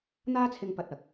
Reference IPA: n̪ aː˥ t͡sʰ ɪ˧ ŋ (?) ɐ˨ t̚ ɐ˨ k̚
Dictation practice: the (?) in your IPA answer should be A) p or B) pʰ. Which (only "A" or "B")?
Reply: A